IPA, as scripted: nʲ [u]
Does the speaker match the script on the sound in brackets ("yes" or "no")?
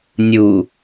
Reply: yes